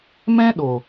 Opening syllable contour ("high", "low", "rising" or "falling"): high